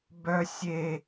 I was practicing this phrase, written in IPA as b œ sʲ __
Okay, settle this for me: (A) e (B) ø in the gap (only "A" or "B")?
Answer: A